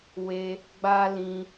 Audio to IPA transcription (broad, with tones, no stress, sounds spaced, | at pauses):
w e˧ | ɡ͡b a˦ l ĩ˧